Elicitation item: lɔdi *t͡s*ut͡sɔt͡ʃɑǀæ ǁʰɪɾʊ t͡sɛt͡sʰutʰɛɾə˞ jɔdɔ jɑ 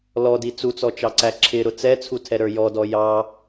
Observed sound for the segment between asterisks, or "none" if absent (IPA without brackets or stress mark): t͡s